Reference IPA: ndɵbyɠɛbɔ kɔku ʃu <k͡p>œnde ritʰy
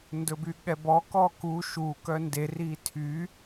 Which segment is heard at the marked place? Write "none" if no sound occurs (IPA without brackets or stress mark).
k